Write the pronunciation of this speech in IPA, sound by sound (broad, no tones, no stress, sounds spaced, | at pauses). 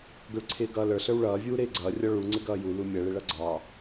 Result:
ɡ ʊ ɭ ǀʰ ɪː ɡ ʌː l ə˞ ɬ ə˞ w ɭ ʌː vʲ uː ɾ ɪː ɡ͡ǀ ʌː rʲ ɔ ɭ u ŋ͡ǀ ɪ ɡ ʌː j u l u mʲ ʌ ɭ ɪ ɭ ʌ ɡ͡ǀ ɑ